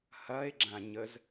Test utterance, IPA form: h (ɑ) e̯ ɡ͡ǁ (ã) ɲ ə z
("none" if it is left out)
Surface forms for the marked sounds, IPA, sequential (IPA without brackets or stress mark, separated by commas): ɐ, ã